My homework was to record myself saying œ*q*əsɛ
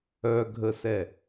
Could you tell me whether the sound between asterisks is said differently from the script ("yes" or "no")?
yes